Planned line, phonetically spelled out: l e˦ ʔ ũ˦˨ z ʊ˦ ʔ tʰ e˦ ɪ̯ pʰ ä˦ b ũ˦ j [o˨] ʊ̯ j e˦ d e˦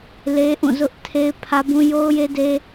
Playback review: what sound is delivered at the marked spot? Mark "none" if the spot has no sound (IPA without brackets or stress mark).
o˦